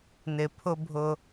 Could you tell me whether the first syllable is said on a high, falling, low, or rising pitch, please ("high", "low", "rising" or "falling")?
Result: low